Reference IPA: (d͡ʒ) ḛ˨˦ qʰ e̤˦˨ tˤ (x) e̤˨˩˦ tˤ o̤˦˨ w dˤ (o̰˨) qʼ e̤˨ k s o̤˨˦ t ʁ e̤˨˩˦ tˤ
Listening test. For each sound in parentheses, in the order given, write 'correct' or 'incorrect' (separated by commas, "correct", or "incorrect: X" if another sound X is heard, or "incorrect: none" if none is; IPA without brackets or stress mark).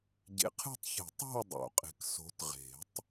incorrect: ɟ, incorrect: ç, incorrect: o̰˨˩˦